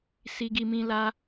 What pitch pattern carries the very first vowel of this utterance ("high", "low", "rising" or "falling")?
high